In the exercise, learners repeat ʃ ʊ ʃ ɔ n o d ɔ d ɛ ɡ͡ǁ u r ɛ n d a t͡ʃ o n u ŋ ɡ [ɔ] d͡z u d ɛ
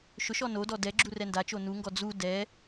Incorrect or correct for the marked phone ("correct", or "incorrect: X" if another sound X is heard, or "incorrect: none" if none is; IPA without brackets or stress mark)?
correct